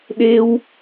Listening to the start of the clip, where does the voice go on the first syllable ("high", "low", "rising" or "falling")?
high